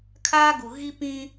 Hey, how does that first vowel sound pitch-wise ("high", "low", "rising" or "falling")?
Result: high